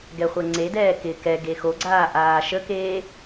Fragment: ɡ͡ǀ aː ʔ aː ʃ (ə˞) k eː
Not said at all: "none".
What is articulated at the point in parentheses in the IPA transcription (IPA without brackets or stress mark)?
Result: ə